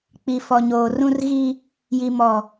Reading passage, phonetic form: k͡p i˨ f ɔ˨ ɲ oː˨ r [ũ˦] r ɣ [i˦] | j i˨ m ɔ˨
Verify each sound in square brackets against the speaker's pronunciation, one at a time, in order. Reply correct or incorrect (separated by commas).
correct, correct